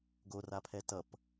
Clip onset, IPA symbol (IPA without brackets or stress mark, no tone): ɡ